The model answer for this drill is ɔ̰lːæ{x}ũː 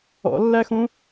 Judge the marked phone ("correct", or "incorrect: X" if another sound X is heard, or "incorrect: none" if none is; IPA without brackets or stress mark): correct